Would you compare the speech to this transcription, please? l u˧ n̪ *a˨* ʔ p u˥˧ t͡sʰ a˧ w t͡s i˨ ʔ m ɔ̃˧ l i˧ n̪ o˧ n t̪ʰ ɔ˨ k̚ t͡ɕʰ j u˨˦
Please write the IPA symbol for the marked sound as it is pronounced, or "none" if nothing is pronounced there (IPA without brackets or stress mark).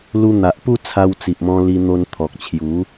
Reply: a˨